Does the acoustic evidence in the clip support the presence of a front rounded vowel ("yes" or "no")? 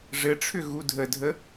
yes